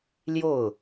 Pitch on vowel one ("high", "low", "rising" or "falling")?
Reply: falling